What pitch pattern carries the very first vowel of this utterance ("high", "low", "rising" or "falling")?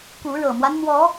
rising